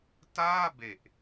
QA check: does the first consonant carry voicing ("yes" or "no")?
no